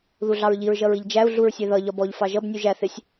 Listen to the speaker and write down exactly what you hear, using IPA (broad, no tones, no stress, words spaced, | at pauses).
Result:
ðuɮɑɹʎiɹ ʒʌɹiʎd͡ʒæu̯ ɮuɹsʲɛðʌ ʎɒbɔʎ fɑʒʌb nʲuʒæ θɪsʲ